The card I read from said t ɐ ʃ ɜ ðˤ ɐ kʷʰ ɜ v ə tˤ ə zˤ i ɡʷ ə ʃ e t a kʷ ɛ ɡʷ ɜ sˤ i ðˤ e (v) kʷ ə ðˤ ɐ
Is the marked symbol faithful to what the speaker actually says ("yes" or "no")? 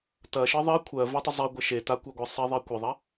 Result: no